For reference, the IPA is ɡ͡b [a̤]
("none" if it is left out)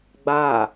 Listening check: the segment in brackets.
a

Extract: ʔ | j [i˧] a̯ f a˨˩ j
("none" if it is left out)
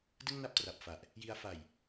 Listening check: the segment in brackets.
i˧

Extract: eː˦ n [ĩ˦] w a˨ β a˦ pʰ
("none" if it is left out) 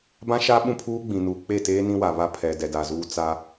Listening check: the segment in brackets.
ĩ˦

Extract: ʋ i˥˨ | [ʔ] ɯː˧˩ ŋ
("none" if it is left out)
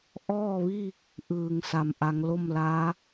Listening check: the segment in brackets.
ʔ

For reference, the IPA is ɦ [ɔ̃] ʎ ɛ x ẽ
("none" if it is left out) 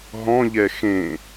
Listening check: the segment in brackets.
ɔ̃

